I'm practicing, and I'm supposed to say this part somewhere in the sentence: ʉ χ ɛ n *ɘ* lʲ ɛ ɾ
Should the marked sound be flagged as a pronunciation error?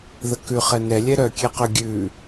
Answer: yes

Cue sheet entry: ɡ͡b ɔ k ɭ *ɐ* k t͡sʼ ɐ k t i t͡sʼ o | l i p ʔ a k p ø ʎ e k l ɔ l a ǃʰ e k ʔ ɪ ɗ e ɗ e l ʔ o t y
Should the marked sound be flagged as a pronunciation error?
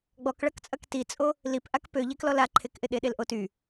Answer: no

